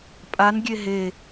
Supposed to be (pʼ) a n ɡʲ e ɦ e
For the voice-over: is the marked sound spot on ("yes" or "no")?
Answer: yes